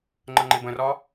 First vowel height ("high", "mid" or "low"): mid